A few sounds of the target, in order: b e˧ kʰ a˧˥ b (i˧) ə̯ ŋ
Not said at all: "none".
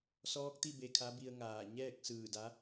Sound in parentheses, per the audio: i˧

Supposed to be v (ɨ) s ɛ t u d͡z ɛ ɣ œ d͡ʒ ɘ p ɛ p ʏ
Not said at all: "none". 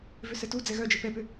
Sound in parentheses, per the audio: ʏ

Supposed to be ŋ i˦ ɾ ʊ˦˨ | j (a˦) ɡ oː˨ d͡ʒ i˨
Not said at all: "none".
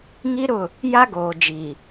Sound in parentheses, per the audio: a˦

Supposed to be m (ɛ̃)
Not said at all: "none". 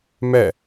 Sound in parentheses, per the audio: ɛ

